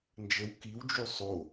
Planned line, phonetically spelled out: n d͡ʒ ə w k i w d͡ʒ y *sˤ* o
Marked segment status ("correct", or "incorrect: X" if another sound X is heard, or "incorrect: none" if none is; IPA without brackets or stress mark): correct